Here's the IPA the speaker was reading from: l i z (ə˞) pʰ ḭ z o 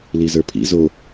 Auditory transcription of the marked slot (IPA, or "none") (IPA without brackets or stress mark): ə˞